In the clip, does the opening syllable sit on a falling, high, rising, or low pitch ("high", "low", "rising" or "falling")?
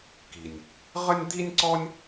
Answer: low